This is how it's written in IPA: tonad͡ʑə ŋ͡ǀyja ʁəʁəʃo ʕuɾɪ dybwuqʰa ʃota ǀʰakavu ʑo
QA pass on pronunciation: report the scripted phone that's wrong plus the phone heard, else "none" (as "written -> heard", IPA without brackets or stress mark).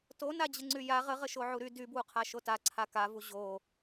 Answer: ɪ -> y